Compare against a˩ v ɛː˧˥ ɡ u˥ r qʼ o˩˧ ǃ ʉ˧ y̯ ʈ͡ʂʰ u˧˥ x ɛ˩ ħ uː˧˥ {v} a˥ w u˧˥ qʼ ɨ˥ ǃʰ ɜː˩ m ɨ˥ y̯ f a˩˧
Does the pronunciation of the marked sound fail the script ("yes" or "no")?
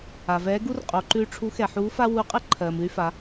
yes